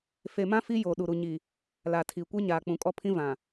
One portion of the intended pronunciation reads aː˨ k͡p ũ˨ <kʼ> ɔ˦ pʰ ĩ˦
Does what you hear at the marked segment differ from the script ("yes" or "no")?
no